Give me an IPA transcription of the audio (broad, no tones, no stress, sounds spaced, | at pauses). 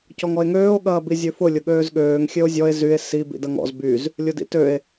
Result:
c ɔ ŋ ɔ e̯ ŋ øː o̯ ɠ ɐː b i zʲ ø f ʊ lʲ ʊ ɠ øː z ɠ øː ŋ xʲ ø o̯ zʲ ɔ e̯ z y e̯ s i b ḭ d ɐ ŋ ɔ̰ z b y z | lʲ ʊ d ḭ t ø e̯